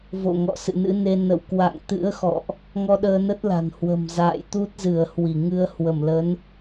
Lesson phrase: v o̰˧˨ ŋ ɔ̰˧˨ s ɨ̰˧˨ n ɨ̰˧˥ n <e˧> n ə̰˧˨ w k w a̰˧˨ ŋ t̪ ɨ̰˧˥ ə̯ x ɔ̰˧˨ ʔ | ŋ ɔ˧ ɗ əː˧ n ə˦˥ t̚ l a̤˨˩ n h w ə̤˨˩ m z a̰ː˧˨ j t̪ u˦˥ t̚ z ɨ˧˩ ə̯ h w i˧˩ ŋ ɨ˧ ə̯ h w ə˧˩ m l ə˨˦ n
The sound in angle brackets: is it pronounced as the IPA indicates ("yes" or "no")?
yes